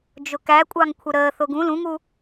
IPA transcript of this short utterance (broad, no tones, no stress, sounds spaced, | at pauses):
d͡ʒ ʊ k æ kʷʼ ɑ ŋ kʷʰ ə ɾ əː θ ʊ ɡ ũ l ũ ŋ u